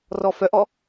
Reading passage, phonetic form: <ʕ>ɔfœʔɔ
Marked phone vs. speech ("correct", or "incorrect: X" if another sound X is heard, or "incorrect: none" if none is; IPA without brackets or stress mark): incorrect: r